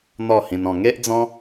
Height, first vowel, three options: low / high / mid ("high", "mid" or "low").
mid